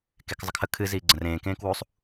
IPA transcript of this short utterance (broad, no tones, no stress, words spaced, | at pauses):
kekzˤəkʰə kʰɨ ziːɡ͡ǀə̃rẽː kẽːkwusˤ